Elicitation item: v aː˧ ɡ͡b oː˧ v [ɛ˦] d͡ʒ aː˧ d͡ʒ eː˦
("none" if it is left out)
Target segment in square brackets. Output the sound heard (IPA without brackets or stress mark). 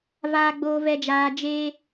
ɛ˧